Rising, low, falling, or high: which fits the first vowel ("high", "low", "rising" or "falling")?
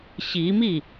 rising